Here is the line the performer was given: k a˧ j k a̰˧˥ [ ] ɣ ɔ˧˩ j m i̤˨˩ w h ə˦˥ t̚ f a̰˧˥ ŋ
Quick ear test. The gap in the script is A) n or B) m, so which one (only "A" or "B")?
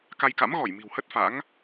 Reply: B